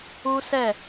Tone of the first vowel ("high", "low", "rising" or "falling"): high